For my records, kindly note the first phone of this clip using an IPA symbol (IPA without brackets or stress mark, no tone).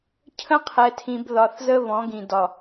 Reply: cʰ